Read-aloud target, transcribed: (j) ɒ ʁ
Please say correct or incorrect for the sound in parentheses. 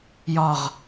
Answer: correct